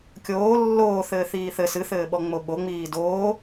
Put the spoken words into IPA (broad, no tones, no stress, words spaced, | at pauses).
kʲoː lːoːθɘː θiːθɘ sɨθɘːɓɔ ŋ͡moɓoŋ͡miː doː